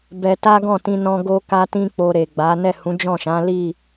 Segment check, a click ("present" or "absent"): absent